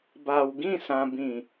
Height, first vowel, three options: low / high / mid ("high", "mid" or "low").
low